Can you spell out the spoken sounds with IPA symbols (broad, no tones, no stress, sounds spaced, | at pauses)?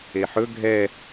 e ħ ɵ ɡʱ ɛ